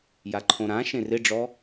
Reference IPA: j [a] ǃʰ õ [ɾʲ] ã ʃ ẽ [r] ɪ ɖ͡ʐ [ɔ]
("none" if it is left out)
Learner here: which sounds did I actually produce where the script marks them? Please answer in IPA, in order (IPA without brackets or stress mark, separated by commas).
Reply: a, ɾ, r, ɔ